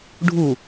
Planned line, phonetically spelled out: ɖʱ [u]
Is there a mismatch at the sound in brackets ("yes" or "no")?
no